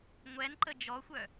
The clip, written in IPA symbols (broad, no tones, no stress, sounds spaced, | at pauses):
ŋʷ ɛ n ǃ ə d͡ʒ ɔ xʷ œ